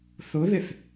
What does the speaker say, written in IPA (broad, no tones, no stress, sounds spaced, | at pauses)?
θ ʊ ð ɪ θ